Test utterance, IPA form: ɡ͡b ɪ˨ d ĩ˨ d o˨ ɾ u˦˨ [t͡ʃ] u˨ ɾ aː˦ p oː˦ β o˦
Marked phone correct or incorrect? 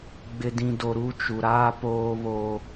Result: correct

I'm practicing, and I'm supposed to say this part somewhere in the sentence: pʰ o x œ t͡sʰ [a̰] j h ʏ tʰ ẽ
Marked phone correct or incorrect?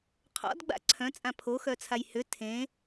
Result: incorrect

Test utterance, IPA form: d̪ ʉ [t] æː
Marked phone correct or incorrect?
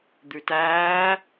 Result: correct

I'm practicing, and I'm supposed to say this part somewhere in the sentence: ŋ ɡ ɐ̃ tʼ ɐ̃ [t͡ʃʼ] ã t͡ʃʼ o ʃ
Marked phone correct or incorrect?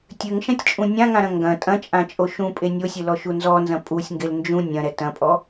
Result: correct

